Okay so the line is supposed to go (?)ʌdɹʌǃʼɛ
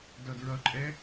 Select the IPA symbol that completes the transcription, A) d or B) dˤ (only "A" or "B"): A